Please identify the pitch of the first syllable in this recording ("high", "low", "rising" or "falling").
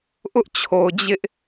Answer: high